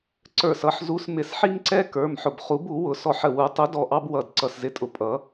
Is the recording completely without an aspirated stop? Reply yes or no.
yes